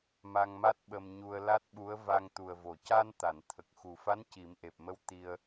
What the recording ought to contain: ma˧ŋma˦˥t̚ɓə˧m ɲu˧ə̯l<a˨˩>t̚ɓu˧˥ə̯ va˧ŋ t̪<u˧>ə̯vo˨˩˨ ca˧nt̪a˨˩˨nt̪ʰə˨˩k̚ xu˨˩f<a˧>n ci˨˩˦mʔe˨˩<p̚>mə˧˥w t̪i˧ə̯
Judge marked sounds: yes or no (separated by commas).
no, no, no, yes